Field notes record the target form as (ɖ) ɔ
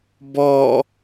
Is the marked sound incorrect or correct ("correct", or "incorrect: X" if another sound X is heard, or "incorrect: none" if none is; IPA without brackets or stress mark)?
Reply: incorrect: b